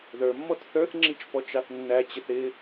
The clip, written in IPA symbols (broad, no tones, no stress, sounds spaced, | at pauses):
ð ə˞ mː ɔ t θ ə˞ θ ŋ͡ǁ i t͡ʃ p ɔ t͡ʃ ɑ θ nː æ t͡ɕ ɪ θ ɪ